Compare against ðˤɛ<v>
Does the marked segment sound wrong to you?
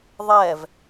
no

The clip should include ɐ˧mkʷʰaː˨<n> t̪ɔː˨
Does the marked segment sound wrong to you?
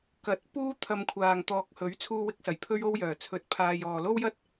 yes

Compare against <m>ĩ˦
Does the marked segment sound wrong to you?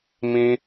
no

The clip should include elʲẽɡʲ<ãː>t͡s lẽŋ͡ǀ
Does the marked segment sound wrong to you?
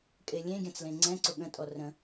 yes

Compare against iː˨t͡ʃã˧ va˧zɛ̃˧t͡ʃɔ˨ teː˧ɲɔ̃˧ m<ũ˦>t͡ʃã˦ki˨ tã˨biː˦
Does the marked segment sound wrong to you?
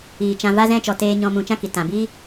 yes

